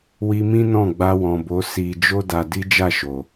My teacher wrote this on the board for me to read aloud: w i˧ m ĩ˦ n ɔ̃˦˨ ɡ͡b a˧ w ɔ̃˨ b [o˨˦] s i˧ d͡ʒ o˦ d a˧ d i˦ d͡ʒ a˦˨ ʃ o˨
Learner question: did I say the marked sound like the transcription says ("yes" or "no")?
yes